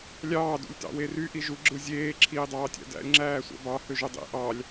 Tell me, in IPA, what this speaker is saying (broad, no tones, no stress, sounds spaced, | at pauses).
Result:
lʲ ɑː d ṵ lʲ t ɑ̰ w e r y ʔ i ʒ u ɡ͡ǁ ɯ zʲ eː ǁʰ iː dˤ ɑː tʲ æ̰ d æ̰ lʲ ŋ͡ǁ æː sʷ æ̰ b ɑ h ø ʒ ø dˤ ḭ ʔ ɑ lʲ